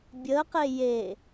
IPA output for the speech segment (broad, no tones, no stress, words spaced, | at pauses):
bʲəqe je